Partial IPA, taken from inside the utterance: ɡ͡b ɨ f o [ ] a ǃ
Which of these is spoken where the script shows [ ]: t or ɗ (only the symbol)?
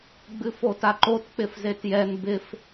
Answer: t